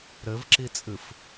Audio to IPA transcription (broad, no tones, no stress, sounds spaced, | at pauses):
ɾ ɘ v ǁ i t͡sʼ ɨ f